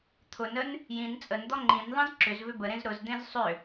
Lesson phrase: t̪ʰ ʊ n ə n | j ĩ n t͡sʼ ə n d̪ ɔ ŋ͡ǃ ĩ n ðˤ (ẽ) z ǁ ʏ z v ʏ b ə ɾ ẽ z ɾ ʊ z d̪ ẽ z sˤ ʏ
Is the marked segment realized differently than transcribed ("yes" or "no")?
yes